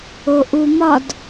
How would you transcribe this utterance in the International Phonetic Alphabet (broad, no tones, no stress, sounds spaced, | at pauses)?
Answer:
o ʔ u m ɒ d